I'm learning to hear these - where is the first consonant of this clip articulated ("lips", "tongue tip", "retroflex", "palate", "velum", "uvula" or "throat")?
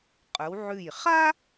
uvula